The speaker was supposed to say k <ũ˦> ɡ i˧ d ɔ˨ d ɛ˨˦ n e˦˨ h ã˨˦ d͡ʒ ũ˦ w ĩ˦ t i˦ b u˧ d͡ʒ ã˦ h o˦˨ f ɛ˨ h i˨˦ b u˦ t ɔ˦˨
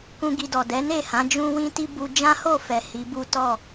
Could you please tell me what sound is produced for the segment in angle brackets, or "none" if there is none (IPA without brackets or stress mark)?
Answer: ũ˦